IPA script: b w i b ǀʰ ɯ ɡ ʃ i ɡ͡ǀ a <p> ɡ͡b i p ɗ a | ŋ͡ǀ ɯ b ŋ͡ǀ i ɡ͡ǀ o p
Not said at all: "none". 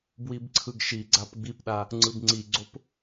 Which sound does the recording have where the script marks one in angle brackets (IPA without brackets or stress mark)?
p